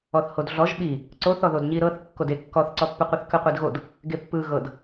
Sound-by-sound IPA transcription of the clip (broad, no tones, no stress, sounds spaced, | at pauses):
ɔ θ h o d ɮ ɔ ʒ ɓ i | ǀ o θ ɔ ð o d ɲ i ɾ ɤ θ kː o d e kː ɔ θ ǀ ɔ pː ɯ qʷ e θ k ɯ qʷ i d ɣ o d | ɡ e pː ɯ ɣ ɤ d